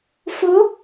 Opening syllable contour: rising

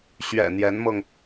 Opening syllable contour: low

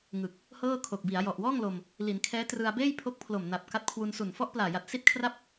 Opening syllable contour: low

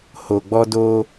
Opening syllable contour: low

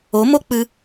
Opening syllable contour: rising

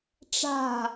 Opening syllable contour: falling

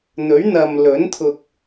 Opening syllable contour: rising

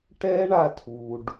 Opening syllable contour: high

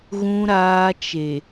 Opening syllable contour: low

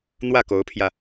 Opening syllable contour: falling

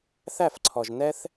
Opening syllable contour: falling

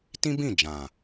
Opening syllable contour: high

